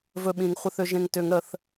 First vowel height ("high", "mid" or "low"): mid